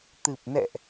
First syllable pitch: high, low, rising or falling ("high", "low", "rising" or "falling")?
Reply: low